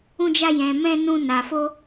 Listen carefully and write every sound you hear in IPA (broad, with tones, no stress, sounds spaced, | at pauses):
ũ˦ d͡ʒ a˦ j ɛ̃˧ m ɛ̃˦ n ũ˦ n a˧ f o˦